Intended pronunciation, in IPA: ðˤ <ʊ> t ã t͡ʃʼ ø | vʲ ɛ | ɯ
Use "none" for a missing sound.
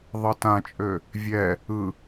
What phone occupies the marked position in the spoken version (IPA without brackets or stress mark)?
ɯ